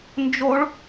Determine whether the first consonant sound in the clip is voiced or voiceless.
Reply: voiced